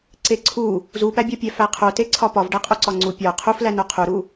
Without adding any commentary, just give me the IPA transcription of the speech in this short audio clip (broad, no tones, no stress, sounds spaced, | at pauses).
ǀ e ǀʰ u | z u p æ bʲ ɒ pʲ æ f æ qʰ o t e ǀʰ ɒ p ɒ v ɖ æ qʼ o ǀ ɒ ŋ͡ǀ u pʲ ɒ qʰ u f l æ n o qʰ u ɾ u